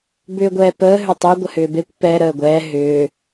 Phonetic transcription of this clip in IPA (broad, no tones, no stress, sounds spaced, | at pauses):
b ʏː ɡʷ ɛː p əː ɦ ʏ tˤ e ɡʷ ə h ʏː b e kʷ p ɛ ɾ əː ɡʷ ɛː ɦ ʏː